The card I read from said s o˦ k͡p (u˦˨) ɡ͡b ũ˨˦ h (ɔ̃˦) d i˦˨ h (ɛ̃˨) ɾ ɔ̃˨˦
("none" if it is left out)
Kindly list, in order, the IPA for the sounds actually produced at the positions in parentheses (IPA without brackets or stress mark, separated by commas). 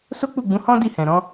u˦˨, ɔ̃˦, ɛ̃˨